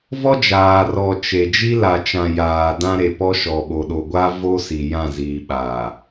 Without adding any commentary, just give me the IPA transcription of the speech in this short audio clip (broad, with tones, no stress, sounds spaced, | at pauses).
v ɔ˦ d͡ʒ aː˨ r ɔ˨ t͡ʃ e˨ d͡ʒ i˦ l a˨ t͡ʃ ã˨ j aː˨ d ã˦ ɾ e˨ p ɔ˦ ʃ ɔ˨ ɓ o˨ ɗ o˨ ɡʷ a˦ v o˦ s i˨ j ã˦˨ z iː˨ ɓ aː˨